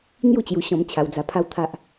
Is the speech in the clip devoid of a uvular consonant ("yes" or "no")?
yes